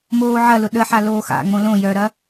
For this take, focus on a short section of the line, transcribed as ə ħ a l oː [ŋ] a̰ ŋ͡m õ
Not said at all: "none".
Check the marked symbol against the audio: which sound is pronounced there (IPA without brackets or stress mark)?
x